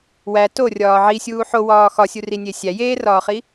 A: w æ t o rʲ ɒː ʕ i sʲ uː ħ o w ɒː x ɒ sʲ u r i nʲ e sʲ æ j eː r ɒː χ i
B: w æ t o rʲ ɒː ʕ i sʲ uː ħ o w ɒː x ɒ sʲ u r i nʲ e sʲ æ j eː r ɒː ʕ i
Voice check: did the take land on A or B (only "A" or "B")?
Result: A